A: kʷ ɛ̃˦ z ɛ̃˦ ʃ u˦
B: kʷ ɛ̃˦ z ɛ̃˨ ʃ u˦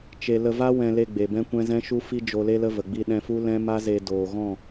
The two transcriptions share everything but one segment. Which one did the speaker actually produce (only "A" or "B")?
A